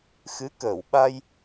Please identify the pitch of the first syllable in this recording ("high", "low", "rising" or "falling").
rising